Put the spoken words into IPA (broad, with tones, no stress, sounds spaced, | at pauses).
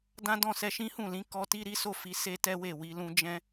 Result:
d ã˦ d ɔ̃˦˨ s ɛ˧ ʃ ĩ˦ h ũ˦˨ l ĩ˨˦ k ɔ˧ t i˦ ɾ i˦ s o˦˨ f i˨˦ s e˦ t ɛ˦ w e˦˨ w i˧ l ũ˦ d͡ʒ ɛ̃˦